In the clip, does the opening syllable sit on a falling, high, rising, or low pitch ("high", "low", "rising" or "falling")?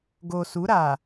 low